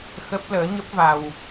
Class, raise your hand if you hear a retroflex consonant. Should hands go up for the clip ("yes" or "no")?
no